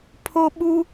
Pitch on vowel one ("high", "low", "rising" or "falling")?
high